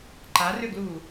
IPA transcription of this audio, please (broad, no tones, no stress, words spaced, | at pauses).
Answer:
ǃarʏɡlu